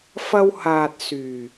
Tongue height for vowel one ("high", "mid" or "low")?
low